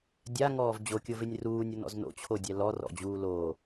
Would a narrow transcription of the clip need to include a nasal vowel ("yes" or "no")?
no